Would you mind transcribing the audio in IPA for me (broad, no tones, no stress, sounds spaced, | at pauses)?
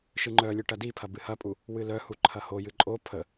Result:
ʃ ɨ ŋ͡ǃ œ lʲ ɨ ʈ ɐ d i pʰ ɐ b ɨ h ɐ pʼ u | w ɨ l œ h u ǃʰ ɐ h o j ɨ ǃʼ o pʰ ə